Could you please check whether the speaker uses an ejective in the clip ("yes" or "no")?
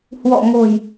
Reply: no